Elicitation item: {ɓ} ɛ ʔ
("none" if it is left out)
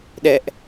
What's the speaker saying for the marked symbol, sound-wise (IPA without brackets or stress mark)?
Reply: ɗ